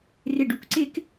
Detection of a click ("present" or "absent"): present